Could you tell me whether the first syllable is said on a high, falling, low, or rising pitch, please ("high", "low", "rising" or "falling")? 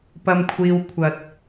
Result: low